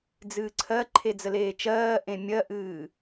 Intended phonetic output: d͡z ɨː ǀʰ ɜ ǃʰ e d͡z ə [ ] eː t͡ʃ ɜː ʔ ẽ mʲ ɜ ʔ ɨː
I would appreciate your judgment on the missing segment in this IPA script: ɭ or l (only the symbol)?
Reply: l